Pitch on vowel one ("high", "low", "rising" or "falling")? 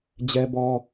high